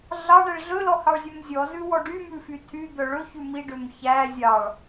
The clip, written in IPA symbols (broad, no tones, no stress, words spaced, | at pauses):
ɮɑɳɛɭ ɮɵlɔhɑɭzʲœm zʲɔzʉwɔ ɖymʉfy tʰyd̪œ ɭɵçʉ miɖøm çæ zʲɑɭ